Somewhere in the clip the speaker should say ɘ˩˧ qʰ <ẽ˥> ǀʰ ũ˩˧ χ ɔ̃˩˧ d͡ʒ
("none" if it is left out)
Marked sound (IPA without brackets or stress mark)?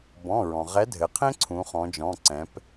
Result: ẽ˥